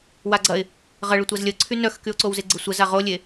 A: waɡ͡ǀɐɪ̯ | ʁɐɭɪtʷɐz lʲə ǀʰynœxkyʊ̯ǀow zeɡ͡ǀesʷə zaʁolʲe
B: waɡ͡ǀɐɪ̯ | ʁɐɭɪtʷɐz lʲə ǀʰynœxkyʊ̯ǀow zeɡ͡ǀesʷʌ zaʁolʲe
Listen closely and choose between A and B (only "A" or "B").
A